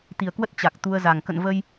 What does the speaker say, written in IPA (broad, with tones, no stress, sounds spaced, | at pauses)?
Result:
t̪ i˨˩ ə̯ k w ə˦˥ t̚ t͡ɕ a˨˩ k̚ t̪ u˧ ə̯ z a˨˩ ŋ k ə̰˧˨ n v ə˧ j